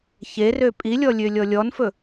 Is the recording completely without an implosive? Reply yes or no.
yes